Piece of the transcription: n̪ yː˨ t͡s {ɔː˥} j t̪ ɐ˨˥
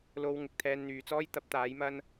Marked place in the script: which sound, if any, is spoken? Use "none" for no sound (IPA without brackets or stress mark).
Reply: ɔː˥